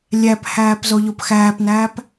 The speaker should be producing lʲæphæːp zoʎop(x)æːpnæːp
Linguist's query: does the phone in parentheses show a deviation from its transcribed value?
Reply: no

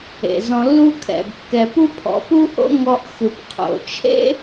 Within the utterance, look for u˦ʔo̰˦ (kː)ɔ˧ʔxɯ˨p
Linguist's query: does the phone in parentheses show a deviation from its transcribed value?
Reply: yes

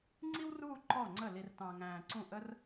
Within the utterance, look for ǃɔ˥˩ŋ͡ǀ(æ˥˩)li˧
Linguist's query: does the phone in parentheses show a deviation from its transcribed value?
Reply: yes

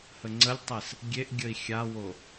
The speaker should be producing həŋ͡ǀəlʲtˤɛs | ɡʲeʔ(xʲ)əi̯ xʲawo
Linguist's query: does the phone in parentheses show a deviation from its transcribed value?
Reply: yes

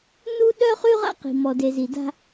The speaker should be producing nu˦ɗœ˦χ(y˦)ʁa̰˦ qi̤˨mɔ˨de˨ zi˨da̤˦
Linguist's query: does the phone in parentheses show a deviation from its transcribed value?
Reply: no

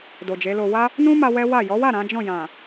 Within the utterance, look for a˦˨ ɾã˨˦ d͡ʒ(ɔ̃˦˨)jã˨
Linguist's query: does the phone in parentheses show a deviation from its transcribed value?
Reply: no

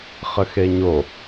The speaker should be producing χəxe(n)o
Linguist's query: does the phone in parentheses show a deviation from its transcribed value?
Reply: yes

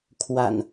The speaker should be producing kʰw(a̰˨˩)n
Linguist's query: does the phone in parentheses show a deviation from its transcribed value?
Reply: no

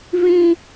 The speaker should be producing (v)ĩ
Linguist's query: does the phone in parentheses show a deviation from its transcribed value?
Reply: no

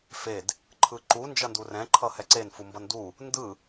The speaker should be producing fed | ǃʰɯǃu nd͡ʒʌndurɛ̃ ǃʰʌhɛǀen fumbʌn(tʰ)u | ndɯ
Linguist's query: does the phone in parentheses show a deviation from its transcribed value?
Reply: yes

